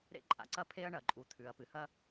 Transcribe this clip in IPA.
ɾ ḛ˥ ǃʼ a̰˩ ǀ ɐ˥ pʰ e˥ ɐ̯ ɳ ɐ˩ ǃʼ u˩ t̪ʰ ʉ˩ ɐ̯ p ɨ˩ h ɐ˥

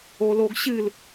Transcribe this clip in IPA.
o l o ɡ ɕ ɨ l

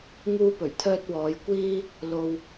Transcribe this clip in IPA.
ŋ uː˥ p ɵ˨˩ ɥ t̪ʰ œː˥ t̚ w ɔː˨˥ j kʷ iː˥ | l o˧ w

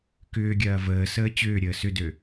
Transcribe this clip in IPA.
k ʏː ɡʲ ɐː v əː s əː t͡ɕ ʏː ɾʲ əː s ʏ d ø

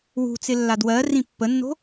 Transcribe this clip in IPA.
w ṳ t͡s ɪ lː a d w ɜ r ĩ pː ə nː o̤

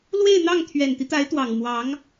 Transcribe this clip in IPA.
l w e˥˧ ɪ̯ n̪ ɑ˥˩ ŋ t̪ʰ ɥ ɛ˨˩ n t̪ i˦ t̪ a˧˥ ɪ̯ t̪ w ɑ˨˩ ŋ m w ɑ˧˥ ŋ

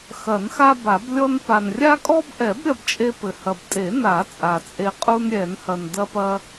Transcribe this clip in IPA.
x ɐ˨˩˦ n x a˦ b a˨˩˦ b lʲ ɔ˦ n p a˨ n rʲ a˦ kʼ ɔ˦ b ʔ ɛ˨˩˦ b ɾʲ ɐ˦ b t͡ʃʼ e˦ p ɘ˨ h ɐ˨ b tʼ e˨˩˦ n a˨˩˦ t͡sʼ a˨ t͡sʼ e˦ qʼ u˦ n ɾʲ ɛ˨˩˦ n h ɐ˨ n d ɐ˦ p ɐ˦

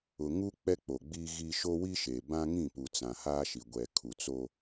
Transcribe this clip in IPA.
ʊ˨ ŋ u˦ k͡p ɛ˦ k͡p o˨ ɡ͡b iː˦ ɣ i˦ ʃ o˦ w i˦ ʃ e˨ b ã˦ ŋ ĩ˦˨ p u˨ t͡s ã˨ h aː˦ ʃ i˨ ɡʷ ɛ˨ kʰ u˨ t͡s o˦

